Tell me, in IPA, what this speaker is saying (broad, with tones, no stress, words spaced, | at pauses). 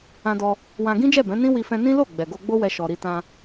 ã˧dɔ˧ | wã˧ ɡĩ˦d͡ʒɛ˦˨bɛ̃˨˦ nĩ˦ wi˦fɛ̃˦ nĩ˦lo˦˨ ɡ͡bɛ˨ɡo˧ɡ͡bo˦wɛ˧ ʃɔ˧ɾi˦ tã˧